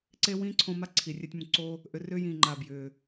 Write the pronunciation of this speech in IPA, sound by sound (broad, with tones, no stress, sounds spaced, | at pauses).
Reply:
ǀ e˦ w ĩː˦ ǀʰ õ˧ m a˦ ǀʰ i˨ rʲ e˧ tʲ m ũ˨ ǀ o˦ | ʔ ʏ˨˦ r ʏː˦ j ĩː˨ ŋ͡ǃ aː˨ b j ʏː˨